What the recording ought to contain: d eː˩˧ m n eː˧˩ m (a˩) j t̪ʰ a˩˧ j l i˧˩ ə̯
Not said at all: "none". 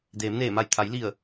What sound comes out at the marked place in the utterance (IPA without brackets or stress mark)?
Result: a˧˩